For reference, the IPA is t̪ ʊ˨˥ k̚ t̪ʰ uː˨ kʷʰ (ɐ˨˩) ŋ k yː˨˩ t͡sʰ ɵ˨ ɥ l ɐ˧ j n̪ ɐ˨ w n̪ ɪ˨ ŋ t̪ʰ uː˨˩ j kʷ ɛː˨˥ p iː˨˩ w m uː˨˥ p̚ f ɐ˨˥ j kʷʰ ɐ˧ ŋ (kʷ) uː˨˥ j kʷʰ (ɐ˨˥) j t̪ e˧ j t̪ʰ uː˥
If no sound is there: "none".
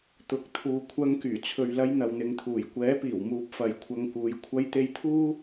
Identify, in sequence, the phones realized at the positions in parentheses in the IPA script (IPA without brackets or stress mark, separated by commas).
ɐ˧, k, ɐ˧